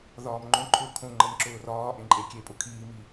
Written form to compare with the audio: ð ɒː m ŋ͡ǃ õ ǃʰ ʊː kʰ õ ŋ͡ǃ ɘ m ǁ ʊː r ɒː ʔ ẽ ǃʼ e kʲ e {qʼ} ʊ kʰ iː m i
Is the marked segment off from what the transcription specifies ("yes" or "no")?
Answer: yes